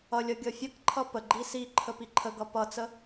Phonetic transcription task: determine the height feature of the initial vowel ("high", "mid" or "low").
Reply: mid